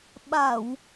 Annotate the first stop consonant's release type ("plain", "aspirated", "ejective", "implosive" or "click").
implosive